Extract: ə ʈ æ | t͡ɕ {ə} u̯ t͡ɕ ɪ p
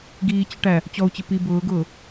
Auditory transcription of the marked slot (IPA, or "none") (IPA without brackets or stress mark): ɔ